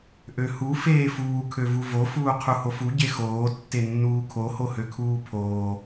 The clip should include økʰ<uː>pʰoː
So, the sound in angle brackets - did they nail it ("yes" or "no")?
yes